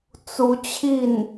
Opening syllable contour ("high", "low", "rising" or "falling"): rising